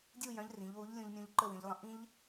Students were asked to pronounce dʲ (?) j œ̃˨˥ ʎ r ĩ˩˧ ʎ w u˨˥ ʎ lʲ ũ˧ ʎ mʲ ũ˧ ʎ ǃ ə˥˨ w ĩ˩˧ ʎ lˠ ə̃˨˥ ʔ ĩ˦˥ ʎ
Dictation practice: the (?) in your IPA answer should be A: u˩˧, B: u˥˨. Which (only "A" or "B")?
B